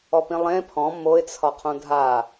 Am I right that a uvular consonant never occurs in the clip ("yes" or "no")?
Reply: no